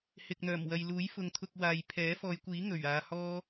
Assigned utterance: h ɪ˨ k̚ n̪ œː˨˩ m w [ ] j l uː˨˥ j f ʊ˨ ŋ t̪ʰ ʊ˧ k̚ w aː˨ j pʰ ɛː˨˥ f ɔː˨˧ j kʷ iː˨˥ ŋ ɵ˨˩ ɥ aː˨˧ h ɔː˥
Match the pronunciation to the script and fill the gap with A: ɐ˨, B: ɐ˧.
A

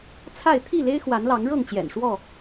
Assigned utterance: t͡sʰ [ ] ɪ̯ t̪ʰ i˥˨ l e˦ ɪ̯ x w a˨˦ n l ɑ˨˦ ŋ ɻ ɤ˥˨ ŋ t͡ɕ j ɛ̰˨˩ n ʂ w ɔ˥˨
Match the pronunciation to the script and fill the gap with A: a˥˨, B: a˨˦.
A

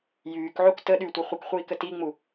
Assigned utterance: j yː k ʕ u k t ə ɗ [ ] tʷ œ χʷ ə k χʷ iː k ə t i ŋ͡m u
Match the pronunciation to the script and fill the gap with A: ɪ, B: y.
B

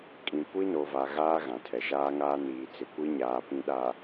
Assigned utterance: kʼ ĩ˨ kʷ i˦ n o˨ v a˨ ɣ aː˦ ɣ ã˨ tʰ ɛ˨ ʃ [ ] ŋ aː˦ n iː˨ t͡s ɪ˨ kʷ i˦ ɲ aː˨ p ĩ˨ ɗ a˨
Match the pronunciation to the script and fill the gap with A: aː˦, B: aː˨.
A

